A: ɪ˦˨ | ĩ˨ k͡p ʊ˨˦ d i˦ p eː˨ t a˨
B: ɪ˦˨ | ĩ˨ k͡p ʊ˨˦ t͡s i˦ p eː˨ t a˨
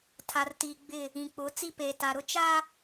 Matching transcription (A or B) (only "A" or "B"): B